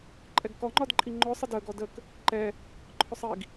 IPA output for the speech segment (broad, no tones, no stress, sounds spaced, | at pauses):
ǃʼ ɛ ɡ k ɔ ŋ͡ǃ ɒ d ǃʼ i ŋ͡ǃ ʊː sˤ ɪ d əː ɡ ɔ d əː k | ǃ ɛ | ǃʰ ʊ sˤ i ɡ